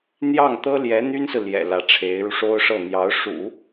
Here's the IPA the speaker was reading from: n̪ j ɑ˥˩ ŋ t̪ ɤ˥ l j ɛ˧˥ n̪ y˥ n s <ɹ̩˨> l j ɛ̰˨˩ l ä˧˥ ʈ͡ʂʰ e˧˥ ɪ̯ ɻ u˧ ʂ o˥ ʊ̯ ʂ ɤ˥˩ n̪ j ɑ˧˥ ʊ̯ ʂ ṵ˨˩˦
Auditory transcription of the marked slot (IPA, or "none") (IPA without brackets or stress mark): ɹ̩˨